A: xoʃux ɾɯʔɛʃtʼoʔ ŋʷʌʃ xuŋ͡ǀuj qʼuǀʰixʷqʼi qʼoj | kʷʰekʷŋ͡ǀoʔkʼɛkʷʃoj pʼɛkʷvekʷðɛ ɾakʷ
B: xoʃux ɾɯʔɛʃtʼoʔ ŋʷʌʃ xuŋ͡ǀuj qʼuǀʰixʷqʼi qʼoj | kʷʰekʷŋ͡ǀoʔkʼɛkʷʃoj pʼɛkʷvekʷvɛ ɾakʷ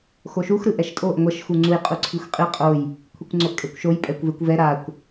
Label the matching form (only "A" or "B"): B